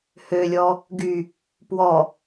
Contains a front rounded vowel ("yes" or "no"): yes